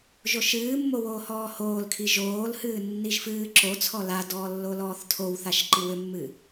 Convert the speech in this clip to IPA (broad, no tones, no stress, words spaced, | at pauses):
ʒoʃɨːmːo woːhɔːhoːlkʰi ʒoːlhɨː nːiʒfɨːǁot͡sʰɔ ladɔː lːolɔːθtʰowθaʃ ǃiwʏmːɨː